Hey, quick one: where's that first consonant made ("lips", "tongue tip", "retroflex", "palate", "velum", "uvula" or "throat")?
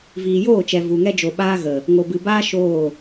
lips